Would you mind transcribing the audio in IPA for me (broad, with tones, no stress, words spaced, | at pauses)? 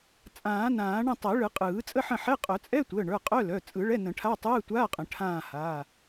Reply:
t͡sʼãː˨˩˦nãː˨˩˦ ɳə̃˦˨tˤɛ˨˩˦ɭɯ˨˩˦qʼɯː˨˩˦ t͡sʼə˧˥˧ħə̃˦˨ħɛ˧˥˧ qʼœ˨˩˦t͡sʼɛ˧˥˧ tʷəː˩˧˩ɳə˞˩˧˩qʼœ˧˥˧ lœ˩˧˩ t͡sʼɯ˨˩˦ɭɛ˧˥˧nə̃˨˩˦ʈʰa˧˥˧ tˤɯː˧˥˧tʷaː˧˥˧ qʼə̃˨˩˦ʈʰãː˦˨haː˩˧˩